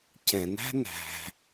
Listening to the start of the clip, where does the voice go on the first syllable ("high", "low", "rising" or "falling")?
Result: low